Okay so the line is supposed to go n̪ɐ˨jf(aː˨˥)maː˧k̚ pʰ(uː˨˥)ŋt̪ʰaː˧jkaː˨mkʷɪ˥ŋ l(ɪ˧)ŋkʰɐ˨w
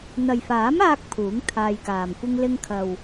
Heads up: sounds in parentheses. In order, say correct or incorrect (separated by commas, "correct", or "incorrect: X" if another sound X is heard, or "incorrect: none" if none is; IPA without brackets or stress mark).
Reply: correct, correct, correct